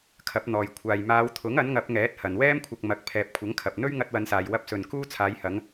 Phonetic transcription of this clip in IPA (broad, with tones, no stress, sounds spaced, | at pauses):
kʰ ɐ˨˥ p̚ n̪ ɔː˨ j kʷʰ aː˨ j m aː˨˧ w t̪ʰ ʊ˨˥ ŋ ɐ˨˥ n ŋ ɐ˨˥ p̚ ŋ ɛː˨˥ t̚ h ɐ˨ n w ɛː˥ m kʷʰ ɐ˧ k̚ m ɐ˨˥ k̚ pʰ ɛː˨ p̚ kʷʰ ɐ˨˥ ŋ kʰ ɐ˨ p̚ n̪ ɵ˥ ɥ ŋ ɐ˧ t̚ w ɐ˨˧ n s aː˨ j w ɐ˧ p̚ s ɵ˨ n k uː˥ t͡sʰ aː˨˧ j h ɐ˨˧ ŋ